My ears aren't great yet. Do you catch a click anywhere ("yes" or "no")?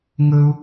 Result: no